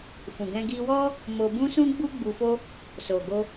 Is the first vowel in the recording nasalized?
yes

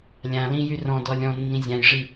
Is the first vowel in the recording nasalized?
yes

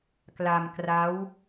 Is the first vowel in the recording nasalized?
no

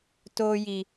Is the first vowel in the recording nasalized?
no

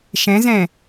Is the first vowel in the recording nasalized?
yes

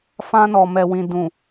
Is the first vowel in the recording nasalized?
yes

